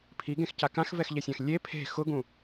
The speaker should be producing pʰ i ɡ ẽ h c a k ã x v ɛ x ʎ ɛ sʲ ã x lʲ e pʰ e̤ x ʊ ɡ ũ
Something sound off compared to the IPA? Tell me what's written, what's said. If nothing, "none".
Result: h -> x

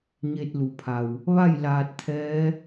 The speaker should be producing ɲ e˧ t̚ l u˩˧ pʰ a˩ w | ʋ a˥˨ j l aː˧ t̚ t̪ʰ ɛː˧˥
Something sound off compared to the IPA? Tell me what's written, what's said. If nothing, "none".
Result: none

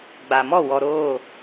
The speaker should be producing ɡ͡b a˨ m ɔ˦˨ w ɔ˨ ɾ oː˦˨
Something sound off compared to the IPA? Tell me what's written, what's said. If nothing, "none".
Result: none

